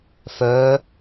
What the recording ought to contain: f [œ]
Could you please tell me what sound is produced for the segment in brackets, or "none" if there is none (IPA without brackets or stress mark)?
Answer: œ